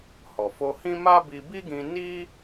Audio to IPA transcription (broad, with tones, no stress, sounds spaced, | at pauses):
h ɔ˨ f o˧ h ĩ˦ m a˦ b i˧ b i˦ ɡ ĩ˧ n i˦